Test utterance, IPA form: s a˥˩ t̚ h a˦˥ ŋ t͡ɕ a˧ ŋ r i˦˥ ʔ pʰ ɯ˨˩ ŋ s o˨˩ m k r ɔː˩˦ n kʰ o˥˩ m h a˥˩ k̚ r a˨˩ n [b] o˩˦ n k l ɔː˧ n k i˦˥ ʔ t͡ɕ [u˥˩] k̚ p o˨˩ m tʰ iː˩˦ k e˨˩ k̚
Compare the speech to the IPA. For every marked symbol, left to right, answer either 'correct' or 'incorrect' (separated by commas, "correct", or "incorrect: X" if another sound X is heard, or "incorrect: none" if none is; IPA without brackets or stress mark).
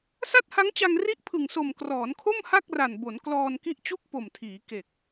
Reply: correct, correct